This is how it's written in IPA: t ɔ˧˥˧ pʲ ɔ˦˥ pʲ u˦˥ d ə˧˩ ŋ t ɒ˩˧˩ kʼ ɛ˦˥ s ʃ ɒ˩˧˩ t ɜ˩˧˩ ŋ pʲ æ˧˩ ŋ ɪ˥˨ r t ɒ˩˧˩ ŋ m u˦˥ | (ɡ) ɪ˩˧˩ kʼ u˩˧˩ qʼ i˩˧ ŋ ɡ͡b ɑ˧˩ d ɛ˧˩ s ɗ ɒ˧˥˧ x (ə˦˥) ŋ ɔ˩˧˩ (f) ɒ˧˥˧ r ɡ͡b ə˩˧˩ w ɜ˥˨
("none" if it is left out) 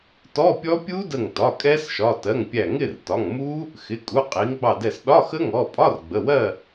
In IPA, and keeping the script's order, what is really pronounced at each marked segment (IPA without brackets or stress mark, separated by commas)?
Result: x, ə˦˥, pʼ